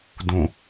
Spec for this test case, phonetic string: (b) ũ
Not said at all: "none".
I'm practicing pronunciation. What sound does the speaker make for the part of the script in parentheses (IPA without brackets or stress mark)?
d